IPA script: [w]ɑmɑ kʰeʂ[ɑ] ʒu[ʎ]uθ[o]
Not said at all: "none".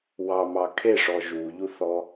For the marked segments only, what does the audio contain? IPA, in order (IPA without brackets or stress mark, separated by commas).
w, ɔ, ʎ, ɔ